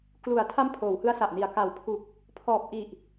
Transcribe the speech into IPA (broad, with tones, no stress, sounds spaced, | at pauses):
k l u˨˩ a̯ tʰ a˦˥ m pʰ oː˩˦ w h ɯ˦˥ a̯ s a˨˩ ʔ n i˩˦ a̯ k a˩˦ w pʰ u˨˩ k̚ | pʰ ɔː˨˩ p̚ ʔ i˨˩ ʔ